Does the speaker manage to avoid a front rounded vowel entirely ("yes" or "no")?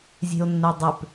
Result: no